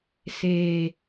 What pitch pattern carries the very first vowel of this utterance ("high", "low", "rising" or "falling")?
low